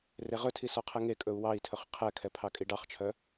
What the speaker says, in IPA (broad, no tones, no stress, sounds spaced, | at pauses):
r e ʁ ɵ tʰ i s ɔ qʰ ɛ ŋ e kʼ ɵ u̯ w ɑ i̯ tʰ ɵ χ qʰ ɛ kʰ ɛ pʰ ɑ kʼ i ɖ ɑ χ t͡ʃʰ œ